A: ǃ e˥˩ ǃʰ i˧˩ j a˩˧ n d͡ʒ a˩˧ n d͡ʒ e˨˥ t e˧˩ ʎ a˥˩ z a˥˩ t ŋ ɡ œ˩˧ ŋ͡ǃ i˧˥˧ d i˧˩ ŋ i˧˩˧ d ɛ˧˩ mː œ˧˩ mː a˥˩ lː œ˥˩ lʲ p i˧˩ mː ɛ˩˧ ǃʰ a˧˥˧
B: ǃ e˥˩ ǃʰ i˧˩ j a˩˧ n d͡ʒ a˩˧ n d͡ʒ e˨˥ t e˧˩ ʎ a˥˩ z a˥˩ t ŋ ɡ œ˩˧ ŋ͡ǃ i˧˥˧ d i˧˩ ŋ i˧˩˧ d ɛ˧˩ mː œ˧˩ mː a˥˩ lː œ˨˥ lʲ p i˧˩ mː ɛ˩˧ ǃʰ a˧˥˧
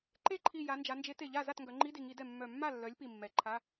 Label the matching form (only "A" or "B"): B